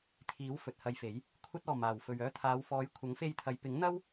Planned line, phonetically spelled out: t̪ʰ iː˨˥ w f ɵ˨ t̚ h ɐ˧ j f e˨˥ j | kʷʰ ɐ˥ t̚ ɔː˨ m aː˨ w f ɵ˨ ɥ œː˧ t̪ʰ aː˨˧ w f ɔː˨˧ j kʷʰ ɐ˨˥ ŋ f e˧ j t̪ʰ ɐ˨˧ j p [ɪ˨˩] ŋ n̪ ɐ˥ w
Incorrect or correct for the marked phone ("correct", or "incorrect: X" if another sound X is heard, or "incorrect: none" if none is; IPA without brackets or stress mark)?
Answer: incorrect: ɪ˨˥